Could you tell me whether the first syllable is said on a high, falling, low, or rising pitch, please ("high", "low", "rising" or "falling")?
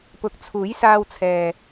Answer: low